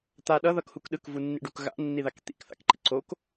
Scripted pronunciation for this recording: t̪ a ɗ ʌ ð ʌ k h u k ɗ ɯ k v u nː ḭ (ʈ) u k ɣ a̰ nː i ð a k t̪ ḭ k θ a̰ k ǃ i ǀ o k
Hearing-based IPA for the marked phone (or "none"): ɖ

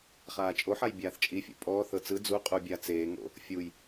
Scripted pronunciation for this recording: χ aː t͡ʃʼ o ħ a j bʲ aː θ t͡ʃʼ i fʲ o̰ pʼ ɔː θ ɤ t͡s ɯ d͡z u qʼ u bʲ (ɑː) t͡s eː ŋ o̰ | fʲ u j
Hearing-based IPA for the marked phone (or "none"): aː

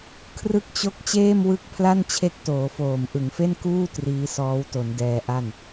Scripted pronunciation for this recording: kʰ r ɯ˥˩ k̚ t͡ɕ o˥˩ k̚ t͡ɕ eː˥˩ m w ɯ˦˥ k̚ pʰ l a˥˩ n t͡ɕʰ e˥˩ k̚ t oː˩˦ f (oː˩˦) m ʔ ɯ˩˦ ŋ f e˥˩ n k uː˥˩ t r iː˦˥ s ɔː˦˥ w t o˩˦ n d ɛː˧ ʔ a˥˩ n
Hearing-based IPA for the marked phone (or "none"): oː˨˩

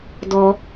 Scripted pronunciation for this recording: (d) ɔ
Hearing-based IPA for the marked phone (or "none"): d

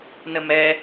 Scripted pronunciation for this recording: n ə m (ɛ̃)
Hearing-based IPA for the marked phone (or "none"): ɛ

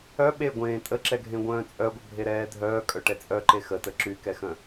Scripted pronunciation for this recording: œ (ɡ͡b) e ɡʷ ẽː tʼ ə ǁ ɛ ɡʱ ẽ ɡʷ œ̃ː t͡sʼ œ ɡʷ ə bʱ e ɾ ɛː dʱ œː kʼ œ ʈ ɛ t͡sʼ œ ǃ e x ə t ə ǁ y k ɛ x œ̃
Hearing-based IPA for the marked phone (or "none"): ɓ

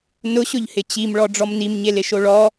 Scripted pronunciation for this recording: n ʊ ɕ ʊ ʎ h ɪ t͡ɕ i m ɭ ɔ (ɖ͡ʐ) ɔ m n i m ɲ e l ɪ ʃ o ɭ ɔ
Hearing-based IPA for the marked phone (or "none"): ɖ͡ʐ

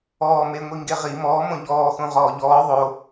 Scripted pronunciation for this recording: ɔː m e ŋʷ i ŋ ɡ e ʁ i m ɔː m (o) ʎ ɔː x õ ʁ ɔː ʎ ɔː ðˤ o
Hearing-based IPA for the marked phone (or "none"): õ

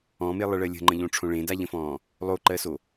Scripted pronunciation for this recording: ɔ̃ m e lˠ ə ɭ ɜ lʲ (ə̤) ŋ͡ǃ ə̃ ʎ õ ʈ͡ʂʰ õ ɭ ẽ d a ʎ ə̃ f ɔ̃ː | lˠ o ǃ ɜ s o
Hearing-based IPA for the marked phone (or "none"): ə̤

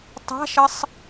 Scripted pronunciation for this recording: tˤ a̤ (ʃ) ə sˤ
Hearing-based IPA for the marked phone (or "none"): ʃ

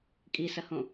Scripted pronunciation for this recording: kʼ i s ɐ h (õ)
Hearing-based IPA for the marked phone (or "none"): õ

